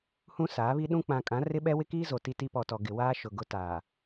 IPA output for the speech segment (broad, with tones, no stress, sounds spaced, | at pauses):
h ũ˦ s aː˨˦ β i˦ ɗ ũ˦ k͡p ã˨ kʼ ã˨˦ r ɪ˦ ɓ ɛ˦ w ɪ˦ k iː˦ z o˨ t i˦ t i˦ p ɔ˨ t ɔ˨ ɡ ɪ˨ w aː˦ ʃ ʊ˨ ɡ ʊ˦ t aː˨